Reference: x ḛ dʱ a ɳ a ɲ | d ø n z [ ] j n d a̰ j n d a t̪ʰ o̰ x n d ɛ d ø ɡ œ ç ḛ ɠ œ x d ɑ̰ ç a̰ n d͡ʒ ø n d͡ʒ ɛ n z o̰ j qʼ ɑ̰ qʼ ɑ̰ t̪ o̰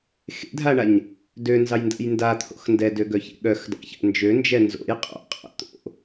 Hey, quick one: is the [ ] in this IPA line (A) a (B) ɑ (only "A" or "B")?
B